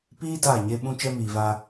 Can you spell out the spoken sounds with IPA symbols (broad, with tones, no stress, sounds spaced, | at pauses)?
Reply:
p iː˦ d aː˦˨ ɲ e˦ ɓ ũ˦ t͡ʃ ɛ˦ m iː˨ v a˦